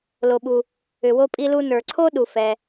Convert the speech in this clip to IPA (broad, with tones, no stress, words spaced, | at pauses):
lo˩ɓu˩ | ʏ˩wo˧pʼi˧lu˧ nə˞˩ǀʰo˥ ɗu˩ fɛ˩